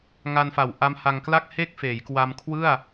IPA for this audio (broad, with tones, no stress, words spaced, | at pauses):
ŋa˧nfa˨˩w ʔa˦˥mha˧ŋ kla˥˩k̚he˥˩k̚ feː˩˦jkwa˧mkʰwɯ˥˩a̯